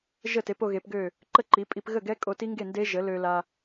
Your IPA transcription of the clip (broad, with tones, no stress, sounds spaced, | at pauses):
ʒ ə˥˩ t e˩˥ p o˧ ɣ e˩˥ p ɡ ø˥˩ | ǃ ə˥˩ ǃ i˩˥ pʼ i˧ p ɣ ə˥˩ ɡ ɛ˦˥ kʼ o˧ t i˦˥ ŋ ɡ e˥˩ n d e˦˥ ʒ ə˩˥ l ø˧ l a˧